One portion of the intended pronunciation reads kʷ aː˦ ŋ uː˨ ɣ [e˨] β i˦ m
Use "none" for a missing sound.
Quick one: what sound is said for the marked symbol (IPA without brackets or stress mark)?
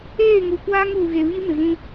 e˨